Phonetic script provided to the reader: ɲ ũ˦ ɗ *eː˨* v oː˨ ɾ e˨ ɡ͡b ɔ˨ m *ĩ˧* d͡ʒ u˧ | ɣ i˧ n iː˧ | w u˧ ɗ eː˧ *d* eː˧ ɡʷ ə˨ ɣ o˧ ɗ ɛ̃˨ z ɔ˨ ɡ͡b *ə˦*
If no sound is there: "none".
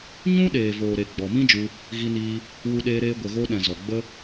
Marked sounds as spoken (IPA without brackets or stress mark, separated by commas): eː˨, ĩ˦, ɾ, ə˦